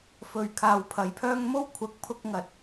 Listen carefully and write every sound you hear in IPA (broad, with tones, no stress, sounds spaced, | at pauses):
f ɵ˨ ɥ kʰ aː˨ w pʰ ɐ˨˥ j pʰ œː˥ ŋ m o˥ w kʷʰ ɐ˨˥ k̚ pʰ ʊ˧ k̚ ŋ ɐ˨ t̚